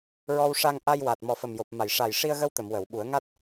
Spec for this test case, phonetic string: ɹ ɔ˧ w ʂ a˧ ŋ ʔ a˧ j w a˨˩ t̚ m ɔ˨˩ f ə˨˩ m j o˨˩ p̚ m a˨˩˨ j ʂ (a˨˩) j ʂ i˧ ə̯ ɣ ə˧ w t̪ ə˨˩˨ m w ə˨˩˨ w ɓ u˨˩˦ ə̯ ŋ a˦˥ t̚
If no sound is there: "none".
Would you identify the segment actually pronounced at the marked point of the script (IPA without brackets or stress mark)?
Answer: a˨˩